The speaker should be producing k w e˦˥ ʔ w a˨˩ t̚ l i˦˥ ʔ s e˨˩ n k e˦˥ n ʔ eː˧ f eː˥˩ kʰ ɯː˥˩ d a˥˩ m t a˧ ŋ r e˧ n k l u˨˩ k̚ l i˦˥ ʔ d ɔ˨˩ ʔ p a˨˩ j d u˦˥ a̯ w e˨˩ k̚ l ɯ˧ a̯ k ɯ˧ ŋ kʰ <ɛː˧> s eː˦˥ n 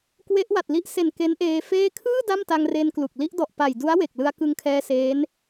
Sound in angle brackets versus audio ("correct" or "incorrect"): correct